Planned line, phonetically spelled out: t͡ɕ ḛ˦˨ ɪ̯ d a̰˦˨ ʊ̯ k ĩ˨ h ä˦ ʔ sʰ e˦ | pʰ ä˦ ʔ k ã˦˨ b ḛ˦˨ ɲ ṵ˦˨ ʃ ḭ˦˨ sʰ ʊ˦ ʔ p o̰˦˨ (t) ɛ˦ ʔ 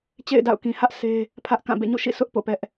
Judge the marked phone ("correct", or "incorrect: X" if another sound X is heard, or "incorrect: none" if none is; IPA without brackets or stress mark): incorrect: p